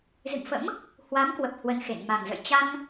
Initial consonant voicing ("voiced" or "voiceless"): voiced